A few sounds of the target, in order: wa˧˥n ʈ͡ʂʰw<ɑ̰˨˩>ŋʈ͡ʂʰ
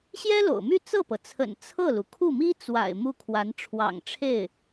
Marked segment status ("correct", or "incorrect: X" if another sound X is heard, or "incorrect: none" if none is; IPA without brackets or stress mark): correct